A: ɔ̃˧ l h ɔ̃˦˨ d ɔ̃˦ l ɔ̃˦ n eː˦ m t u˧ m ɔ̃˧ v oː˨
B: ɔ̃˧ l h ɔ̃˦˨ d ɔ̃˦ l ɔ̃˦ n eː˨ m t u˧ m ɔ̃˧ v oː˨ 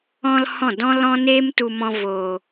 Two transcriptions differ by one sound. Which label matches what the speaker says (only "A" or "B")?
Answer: A